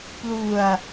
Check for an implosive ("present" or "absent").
absent